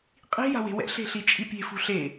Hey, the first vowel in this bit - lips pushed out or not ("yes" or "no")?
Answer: no